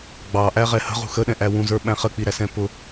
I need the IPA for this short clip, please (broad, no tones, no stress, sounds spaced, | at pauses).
ɡ͡b ɑ ʔ æ ʁ ɛ h ə̤ ʁ ṳ x ə ɗ ɛ̃ ʔ æ w ũ z ə˞ ɓ æ̃ χ ə k͡p i ɾ æ s ɛ̃ p ʊ